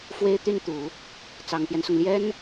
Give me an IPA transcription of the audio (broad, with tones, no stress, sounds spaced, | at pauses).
f w e˥ ɪ̯ t̪ y˥˩ n t̪ u˨˩˦ | t͡s ɑ˨˩ ŋ t̪ j ɛ˦ n s ʊ˩ ŋ l j ɛ˥ n